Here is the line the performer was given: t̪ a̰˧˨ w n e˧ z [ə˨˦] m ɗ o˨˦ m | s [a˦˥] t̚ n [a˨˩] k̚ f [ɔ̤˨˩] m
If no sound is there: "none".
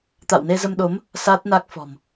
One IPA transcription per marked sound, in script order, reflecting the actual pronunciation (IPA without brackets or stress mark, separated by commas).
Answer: ə˧, a˦˥, a˦˥, ɔ̤˨˩